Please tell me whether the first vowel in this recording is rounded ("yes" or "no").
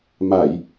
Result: no